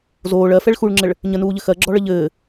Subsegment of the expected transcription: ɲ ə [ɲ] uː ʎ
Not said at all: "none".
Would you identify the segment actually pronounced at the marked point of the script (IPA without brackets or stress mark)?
n